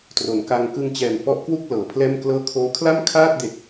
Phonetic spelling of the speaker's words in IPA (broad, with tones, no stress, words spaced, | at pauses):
tro˩˦nka˧ŋ kɯ˧ŋt͡ɕɛː˨˩mfɔ˦˥ʔkwu˥˩k̚ lɤː˩˦pʰlɛː˥˩mklɤː˥˩ kʰoː˦˥kʰla˥˩mkʰaː˥˩t̚de˨˩k̚